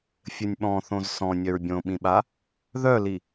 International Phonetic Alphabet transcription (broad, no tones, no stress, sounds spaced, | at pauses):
fʲ ɘ nʲ ɓ ɔ̃ θ õ z s ɔ̃ nʲ œ ɹ bʲ õ ɓ ĩ ɓ a | ð œ l i